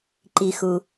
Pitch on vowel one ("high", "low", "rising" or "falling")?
low